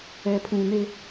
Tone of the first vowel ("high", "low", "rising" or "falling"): low